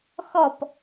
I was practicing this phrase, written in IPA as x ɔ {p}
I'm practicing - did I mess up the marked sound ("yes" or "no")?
no